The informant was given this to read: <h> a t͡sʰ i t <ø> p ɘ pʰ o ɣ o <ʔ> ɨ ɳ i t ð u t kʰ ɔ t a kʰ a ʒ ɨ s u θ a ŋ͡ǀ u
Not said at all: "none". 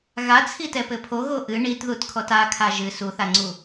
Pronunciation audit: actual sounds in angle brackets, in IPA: ɣ, ɛ, ʔ

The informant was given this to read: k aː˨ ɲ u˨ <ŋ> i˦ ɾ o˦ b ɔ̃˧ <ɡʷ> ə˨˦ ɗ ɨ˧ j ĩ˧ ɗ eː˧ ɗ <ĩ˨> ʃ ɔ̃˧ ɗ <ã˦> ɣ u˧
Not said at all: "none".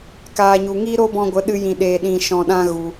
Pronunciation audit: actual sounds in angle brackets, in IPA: ŋ, ɡʷ, ĩ˧, ã˦

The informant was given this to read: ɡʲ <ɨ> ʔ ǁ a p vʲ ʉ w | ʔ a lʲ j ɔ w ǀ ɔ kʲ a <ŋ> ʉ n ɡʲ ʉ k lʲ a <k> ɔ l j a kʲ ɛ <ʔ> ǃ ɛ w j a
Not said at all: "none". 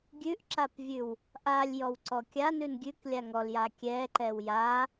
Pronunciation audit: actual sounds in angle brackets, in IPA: ʉ, n, ŋ, none

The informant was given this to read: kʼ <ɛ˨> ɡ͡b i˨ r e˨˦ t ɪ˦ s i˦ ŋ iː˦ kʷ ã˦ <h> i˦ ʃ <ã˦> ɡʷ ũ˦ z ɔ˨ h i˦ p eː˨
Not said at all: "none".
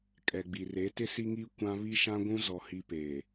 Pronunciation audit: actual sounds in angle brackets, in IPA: ɛ˨, β, ã˦

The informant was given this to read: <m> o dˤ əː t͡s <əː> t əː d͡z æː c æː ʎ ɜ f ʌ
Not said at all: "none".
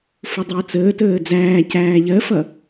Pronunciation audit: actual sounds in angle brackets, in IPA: f, əː

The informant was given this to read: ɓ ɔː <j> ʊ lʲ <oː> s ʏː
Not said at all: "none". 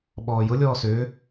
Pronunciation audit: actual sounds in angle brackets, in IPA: j, ɔː

